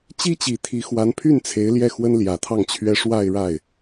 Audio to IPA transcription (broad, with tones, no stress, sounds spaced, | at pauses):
t͡ɕ i˥ t͡ɕ i˨˩ t̪ʰ i˧˥ x w a˧˥ n pʰ y˥˩ n t͡sʰ e˧˥ ɪ̯ l j ɛ˥˩ x w ə˥ n l j ä˨˩ t̪ʰ ɑ˥˩ ŋ t͡ɕʰ ɥ ɛ˥ ʂ w a˥˧ ɪ̯ ɻ a˥˩ ɪ̯